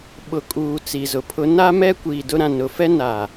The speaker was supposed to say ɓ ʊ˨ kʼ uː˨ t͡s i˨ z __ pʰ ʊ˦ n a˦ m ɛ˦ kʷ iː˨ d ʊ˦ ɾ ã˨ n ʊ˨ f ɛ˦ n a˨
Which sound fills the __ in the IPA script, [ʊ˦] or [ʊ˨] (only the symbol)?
ʊ˨